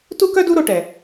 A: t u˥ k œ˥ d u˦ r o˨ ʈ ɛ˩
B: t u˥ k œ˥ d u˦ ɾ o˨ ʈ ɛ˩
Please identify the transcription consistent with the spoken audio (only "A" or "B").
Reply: B